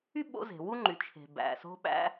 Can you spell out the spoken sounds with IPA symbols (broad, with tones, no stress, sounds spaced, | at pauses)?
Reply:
y˥ ɓ o̰˧˥ z e̤˩ w u˥ ŋ͡ǃ y˩˧ t͡ʃʰ e̤˩ b æ̰˩ s o̤˧ ɓ æ̰˧